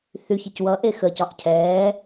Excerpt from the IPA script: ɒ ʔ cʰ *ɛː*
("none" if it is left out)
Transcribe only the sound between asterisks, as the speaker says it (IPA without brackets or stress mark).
ɛː